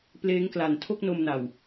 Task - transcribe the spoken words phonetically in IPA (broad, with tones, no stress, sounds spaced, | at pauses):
p l eː˦˥ ŋ k l a˨˩ n tʰ o˥˩ k̚ n o˧ m n a˨˩ w